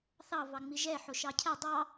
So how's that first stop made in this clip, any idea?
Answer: aspirated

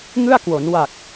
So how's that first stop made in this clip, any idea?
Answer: plain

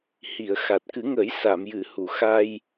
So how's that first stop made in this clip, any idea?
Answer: plain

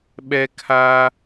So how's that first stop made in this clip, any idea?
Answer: implosive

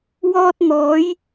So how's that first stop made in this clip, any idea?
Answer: plain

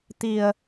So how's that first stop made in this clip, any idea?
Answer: plain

